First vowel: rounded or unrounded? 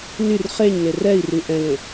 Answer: rounded